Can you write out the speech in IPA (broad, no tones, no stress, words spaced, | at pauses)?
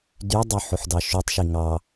dydˤø ħoħdɑʃytˤʃi ŋɑ